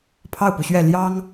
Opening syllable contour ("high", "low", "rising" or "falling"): falling